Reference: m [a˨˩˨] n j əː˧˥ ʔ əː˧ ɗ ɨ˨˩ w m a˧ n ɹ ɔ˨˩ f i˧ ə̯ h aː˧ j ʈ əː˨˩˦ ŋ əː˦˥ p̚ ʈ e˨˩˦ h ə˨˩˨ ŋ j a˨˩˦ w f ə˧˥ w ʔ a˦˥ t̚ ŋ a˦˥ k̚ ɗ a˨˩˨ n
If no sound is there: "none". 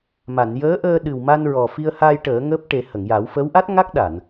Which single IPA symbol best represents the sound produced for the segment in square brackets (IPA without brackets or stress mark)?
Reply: a˨˩˨